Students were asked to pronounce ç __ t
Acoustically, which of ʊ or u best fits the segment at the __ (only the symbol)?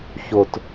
ʊ